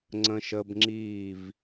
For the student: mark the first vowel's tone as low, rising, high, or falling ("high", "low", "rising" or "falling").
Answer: high